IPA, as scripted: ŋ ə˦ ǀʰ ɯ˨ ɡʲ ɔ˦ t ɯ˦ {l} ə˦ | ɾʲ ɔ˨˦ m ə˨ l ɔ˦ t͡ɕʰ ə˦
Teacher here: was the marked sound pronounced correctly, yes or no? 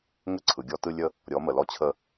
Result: no